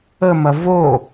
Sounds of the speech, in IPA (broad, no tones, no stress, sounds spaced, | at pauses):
ə m ɐ v o